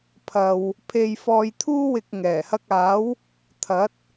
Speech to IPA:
pʰɐ˧w | pʰe˧jfɔː˧jt̪ʰuː˥wɪ˧k̚ ŋɛː˨˩hɐ˧k̚aː˨˥w | t̪ʰɐ˨˥t̚

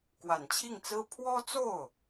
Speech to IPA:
kwa˨˩nt͡ɕʰi˥˩ŋt͡sɹ̩˥ pʰwɔ˥t͡so˥˩ʊ̯

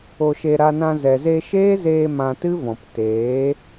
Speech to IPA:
o˧ʃe˧ ɾa˧nã˧ zɛ˨ze˧ʃeː˦zeː˧ mã˧tɨ˦vɔ̃˨p teː˨˦

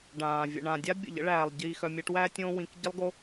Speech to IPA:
ɖãː˨ vʲə̰˨ɳã˨dʲa˦ bʲə̰˨ʎə̰˦ɭæː˨lˠ ɟiː˧xœ˧mʲæ˦ʈ wæ˦ tʲõː˦wĩ˧k ɟə˦lˠɡo˦

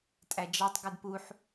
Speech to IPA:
tʼæd͡ʒɑtˤ ɡʉdpuħ

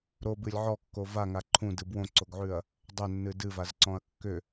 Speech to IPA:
ɾobɨlʲ ʕɔkːo vaŋa ǃʰũdɨ bwõǀoɡʕʉɐ̯ | dˤʏnːɨ dɨvazǀɔ̃ɐ̯ kːʏ

